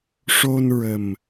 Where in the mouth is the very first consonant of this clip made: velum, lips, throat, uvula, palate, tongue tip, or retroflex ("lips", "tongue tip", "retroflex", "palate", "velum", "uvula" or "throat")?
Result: retroflex